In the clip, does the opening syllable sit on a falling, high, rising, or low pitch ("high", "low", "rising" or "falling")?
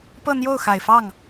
falling